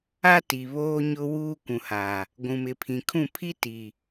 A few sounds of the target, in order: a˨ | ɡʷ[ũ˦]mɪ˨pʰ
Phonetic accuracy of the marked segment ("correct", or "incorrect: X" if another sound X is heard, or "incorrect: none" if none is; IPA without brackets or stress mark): incorrect: ũ˨